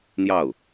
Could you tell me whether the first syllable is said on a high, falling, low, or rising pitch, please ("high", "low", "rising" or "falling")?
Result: falling